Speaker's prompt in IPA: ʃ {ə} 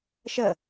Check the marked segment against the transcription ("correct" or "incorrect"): correct